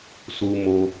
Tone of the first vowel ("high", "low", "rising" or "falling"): high